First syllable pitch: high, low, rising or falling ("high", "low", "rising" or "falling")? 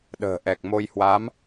low